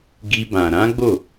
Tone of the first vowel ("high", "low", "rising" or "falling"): high